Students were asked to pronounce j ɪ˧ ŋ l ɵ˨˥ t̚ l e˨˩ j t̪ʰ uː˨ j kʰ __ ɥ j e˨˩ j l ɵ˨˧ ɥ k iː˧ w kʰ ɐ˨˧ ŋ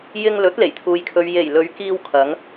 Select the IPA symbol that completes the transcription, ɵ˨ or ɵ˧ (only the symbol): ɵ˨